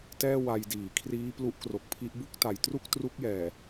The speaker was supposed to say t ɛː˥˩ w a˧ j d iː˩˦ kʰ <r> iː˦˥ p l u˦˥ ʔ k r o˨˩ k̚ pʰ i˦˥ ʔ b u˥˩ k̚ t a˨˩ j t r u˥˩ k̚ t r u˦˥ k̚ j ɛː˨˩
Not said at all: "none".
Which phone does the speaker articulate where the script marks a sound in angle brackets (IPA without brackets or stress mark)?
r